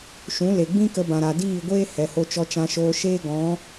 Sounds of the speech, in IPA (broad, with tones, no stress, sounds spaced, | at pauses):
ʃ ũ˨˦ l e˨ ɡ͡b ĩ˦ k ə˧ b ã˨ ɾ a˨ d iː˦˨ ɡʷ eː˦ h ɛ˨ h o˧ t͡ʃ ɔ˧ t͡ʃ ã˧ ʃ oː˧ ʃ eː˦ ɡ ɔ̃˨˦